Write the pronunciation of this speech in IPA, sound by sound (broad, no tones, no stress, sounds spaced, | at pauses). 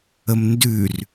ə m n d ʉ r